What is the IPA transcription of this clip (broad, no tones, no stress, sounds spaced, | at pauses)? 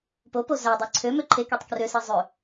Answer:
p o p o z æ dˤ e ǀʰ ø m ø ǃʰ e k y tˤ k r ø s e zˤ ø